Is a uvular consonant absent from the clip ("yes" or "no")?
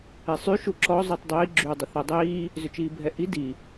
yes